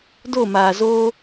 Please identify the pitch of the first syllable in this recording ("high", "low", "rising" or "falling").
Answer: falling